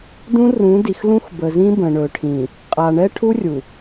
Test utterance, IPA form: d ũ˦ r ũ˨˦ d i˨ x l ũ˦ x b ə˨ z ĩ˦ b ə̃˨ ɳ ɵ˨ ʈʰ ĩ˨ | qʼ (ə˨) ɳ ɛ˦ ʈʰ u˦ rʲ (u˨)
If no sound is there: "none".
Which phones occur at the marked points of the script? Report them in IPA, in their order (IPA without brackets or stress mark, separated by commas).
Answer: a˨, u˨